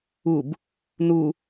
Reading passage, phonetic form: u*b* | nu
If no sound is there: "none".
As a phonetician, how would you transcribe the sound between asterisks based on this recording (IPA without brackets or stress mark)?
b